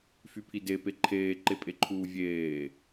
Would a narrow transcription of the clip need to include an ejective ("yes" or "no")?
yes